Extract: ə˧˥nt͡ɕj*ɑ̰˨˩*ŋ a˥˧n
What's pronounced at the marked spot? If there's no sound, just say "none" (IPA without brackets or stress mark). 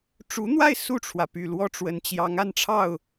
ɑ˧˥